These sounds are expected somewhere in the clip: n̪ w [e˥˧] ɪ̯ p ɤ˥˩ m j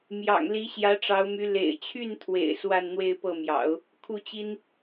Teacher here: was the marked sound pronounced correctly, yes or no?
yes